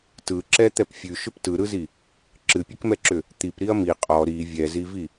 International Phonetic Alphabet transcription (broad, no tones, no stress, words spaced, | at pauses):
tɯǁɛ t̪ɛpfʲʉʃʏp tɯɾɯzi | ǁɨpʲɨkmɛǁʏ | t̪ip ɾiɐ̯mi qʼɔ ɾi vʲɛzivi